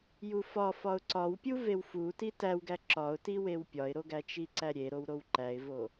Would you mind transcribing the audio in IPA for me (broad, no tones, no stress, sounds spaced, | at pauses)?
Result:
j u f ɒ f ɒ ʊ̯ ǀ ɒ w pʲ u v e w f u t i t æ w ɡ æ ǁ ɒ ʊ̯ t i w e w pʲ ɒ ɪ̯ ɾ o ɡ æ t͡ʃ i ǀ æ ɾʲ e ɾ o w ɾ o w ǃ æ ɪ̯ v o